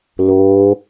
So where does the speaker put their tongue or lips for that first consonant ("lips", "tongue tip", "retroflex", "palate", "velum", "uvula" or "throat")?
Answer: tongue tip